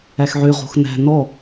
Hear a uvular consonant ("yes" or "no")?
yes